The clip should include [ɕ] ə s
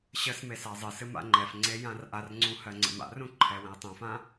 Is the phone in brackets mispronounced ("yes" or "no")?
no